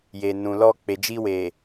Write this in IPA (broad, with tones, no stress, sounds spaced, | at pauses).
j e˨ n ũ˨ l ɔ˧ k͡p e˨ d͡ʒ i˧ w e˨